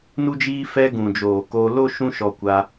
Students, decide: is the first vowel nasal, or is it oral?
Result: oral